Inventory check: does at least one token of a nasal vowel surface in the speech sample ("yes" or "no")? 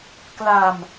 no